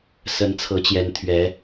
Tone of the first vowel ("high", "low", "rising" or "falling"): rising